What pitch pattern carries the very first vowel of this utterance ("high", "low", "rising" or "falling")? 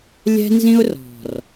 high